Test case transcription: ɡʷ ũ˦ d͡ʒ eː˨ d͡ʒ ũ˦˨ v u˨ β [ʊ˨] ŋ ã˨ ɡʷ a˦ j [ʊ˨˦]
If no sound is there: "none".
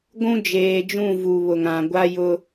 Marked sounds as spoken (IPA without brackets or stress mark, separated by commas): ʊ˨, ʊ˦